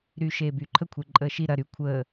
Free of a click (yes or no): no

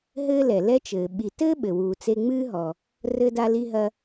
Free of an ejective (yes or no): yes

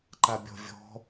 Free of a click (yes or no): no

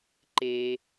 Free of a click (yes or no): no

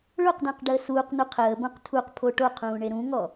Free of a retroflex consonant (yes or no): no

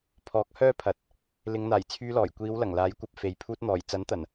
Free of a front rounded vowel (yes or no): no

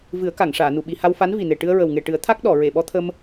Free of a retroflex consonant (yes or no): no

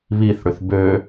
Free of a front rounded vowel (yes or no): no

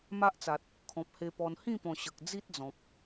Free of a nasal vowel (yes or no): no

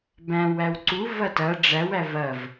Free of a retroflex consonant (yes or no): no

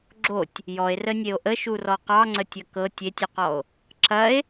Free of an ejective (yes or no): yes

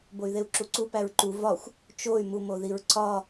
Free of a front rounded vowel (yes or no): no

